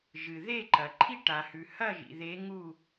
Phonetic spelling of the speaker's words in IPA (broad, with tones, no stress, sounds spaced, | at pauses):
ʒ ɨ˩ ð e˥˨ ǃ ɐ˩ ǃʰ i˦ ʈ a˩ h ʉ˩ h ɐ˥˨ ʒ ḭ˩ ð e˨˦ ŋ u˥˨